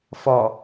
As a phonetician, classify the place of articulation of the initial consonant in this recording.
labial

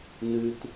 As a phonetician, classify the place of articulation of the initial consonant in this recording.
alveolar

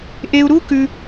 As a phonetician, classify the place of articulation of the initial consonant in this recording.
glottal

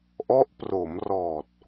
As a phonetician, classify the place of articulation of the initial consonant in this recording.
glottal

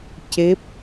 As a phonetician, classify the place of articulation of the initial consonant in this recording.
palatal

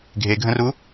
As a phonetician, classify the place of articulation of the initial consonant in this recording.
velar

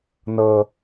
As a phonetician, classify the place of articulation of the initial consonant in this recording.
alveolar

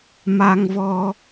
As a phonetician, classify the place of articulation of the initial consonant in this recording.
labial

